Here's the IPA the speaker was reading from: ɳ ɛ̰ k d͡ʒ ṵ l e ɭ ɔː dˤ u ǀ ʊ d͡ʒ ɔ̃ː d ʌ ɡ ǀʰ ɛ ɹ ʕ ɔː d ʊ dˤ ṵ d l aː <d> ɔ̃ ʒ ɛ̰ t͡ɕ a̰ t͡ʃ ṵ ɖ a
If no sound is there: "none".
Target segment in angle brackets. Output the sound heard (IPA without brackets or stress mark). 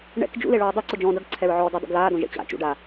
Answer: d